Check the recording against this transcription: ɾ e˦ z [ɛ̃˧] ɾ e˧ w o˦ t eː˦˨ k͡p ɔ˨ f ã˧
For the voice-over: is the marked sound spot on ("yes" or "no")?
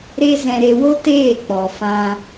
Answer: yes